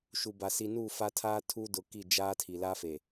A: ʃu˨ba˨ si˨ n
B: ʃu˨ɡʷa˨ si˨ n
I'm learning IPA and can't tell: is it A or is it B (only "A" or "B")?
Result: A